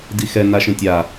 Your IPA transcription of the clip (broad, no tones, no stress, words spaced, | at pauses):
dixɛ n̪aʃẽtʲa